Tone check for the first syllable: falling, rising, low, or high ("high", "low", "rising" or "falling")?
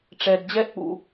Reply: low